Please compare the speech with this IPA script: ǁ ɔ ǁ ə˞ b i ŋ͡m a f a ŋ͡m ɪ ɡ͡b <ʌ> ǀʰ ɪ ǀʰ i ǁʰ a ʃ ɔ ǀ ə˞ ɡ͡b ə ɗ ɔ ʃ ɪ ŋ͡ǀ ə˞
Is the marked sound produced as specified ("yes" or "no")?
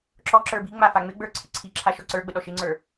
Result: no